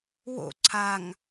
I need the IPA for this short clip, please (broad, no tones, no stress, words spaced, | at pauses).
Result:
wo̰ ǀʰaŋ